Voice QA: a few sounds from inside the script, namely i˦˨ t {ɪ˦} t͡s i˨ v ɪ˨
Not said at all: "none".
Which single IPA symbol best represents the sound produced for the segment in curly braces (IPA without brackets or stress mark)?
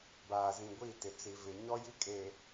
ɪ˨